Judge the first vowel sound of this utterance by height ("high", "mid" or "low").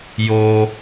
mid